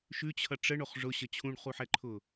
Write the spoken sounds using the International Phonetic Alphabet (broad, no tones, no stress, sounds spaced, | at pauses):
ʃ ʉ t͡ɕʰ ʌ ʈ͡ʂ ə ɳ o χ ʐ ʊ ɕ ə t͡ɕʰ ũ ɳ χ u ħ ɛ ǃʰ ʊ